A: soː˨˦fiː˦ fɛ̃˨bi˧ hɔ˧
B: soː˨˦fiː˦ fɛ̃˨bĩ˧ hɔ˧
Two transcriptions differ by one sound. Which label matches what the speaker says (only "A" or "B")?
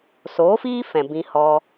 B